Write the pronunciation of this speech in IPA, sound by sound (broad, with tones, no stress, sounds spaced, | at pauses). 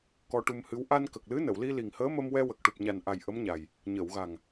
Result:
k ɔ˧ ʈ u˧ m h ɨ˧˥ w ʔ a˧ n k ə˨˩ k̚ l ɨ˧˥ n ə˨˩˨ w l i˧ l i˨˩ ŋ h əː˧˥ m ə˧ m w ɛ˧ w ə˨˩ k̚ ʈ u˨˩ p̚ ɲ a˨˩ n ʔ a˨˩ j ʔ ə˧˥ m ɲ a˨˩ j | ɲ ə˨˩˨ w ɣ a˨˩ ŋ